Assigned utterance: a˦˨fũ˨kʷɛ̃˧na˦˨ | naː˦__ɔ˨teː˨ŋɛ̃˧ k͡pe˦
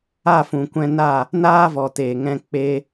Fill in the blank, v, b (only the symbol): v